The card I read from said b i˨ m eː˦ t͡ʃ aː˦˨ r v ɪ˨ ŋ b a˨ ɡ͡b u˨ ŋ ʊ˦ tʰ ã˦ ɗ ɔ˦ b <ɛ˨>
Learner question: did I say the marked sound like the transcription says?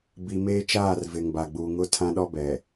yes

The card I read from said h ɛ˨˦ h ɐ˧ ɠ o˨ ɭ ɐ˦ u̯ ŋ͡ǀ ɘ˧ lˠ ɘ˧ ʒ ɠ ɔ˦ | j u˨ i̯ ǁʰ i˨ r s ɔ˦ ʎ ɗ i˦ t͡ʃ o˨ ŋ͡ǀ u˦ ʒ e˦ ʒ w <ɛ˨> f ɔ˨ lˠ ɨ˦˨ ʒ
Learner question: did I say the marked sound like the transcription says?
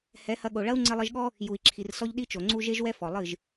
no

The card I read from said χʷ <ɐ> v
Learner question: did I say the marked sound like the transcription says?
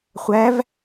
no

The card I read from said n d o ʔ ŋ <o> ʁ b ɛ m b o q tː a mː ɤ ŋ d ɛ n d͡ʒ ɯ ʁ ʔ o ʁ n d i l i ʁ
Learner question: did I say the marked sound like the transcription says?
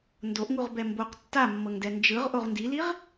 no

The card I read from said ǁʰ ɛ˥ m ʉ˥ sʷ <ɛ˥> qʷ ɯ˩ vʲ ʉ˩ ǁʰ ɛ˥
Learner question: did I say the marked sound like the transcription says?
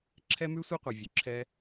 yes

